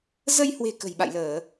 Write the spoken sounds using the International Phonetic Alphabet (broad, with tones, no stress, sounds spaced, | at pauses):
z ə˧ j h w e̤˨˩ k ə̤˨˩ j ɓ a̰˧˨ j l əː˧˩˨